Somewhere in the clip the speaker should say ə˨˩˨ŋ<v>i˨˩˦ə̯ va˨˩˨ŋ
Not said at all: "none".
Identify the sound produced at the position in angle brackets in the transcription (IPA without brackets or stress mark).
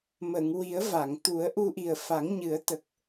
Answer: w